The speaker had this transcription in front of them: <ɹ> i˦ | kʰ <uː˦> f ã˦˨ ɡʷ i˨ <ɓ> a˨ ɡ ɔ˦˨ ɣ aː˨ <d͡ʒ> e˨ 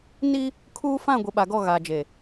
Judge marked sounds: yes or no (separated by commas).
no, yes, yes, yes